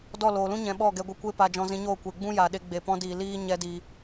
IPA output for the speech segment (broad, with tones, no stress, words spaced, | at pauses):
dɔ˦˨loː˨lũ˦ ɲɛ̃˧ɓɔ˦˨ɡɛ˧ ɡʷɨ˧kʷe˦ pa˧d͡ʒɔ̃˧zĩ˧ɲoː˦˨ kʷe˨ɡ͡bũ˦ja˨ɗe˧ ɡ͡be˨pɔ̃˧diː˨ liː˦ ɲɛ˧diː˨